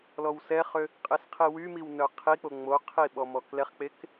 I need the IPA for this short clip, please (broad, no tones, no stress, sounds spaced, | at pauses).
l ɔ w s ɛ χ ø | qʼ e s qʰ i w y m i w n œ qʰ i k͡p o ŋ͡m o qʰ i ɓ ɔ m ɔ k l ɛ χ k͡p e k